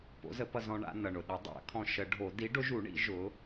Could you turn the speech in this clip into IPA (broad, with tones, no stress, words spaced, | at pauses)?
po̰˨˥zə˨˥pʌ˧zɔ̃˧ ɳa̰˧nʌ˩ɳʊ˩ɗʊ˨˩˦ dˤa̰˨˩˦kʰɔ̃˧ʃə˨˩˦ɖʱo˨˩˦ di˨˥ɖʊ˨˥ʒu˨˩˦ɳḭ˨˩˦ ʒʊ˨˥